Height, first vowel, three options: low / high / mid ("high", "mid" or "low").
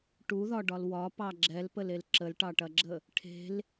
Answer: high